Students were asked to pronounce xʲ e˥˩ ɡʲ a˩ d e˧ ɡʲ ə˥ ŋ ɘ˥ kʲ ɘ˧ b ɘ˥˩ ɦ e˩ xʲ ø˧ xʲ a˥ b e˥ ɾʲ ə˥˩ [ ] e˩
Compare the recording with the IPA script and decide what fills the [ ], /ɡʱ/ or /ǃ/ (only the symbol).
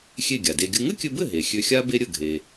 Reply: ɡʱ